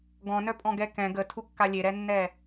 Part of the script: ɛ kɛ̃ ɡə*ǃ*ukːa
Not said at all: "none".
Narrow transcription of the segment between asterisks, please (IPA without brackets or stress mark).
tʰ